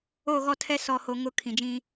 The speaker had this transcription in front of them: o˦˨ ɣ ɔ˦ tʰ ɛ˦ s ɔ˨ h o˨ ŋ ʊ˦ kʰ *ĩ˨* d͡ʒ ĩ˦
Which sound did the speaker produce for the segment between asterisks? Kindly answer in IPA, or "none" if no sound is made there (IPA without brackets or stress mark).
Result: ĩ˨